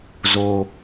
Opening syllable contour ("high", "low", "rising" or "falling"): low